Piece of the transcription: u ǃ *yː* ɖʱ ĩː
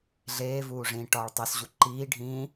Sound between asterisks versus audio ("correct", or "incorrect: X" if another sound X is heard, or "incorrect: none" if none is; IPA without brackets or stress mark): incorrect: iː